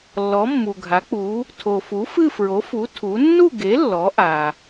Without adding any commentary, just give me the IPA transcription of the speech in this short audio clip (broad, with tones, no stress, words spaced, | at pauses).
lːɔ˨˥mːu˨ɡʱa˨˥k͡pu˨˥ | tʰo˨fu˨˥fɨ˥˧ fɹo˨˥fu˨˥ tʰu˨˥ nːu˥˧ɡe˨˥ lːɔ˨˥ʔa˨